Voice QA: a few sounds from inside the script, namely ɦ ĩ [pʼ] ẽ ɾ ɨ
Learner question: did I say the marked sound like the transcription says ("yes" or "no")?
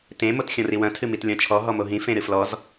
no